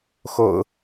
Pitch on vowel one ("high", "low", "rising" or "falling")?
low